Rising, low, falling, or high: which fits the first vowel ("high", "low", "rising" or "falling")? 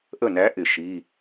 falling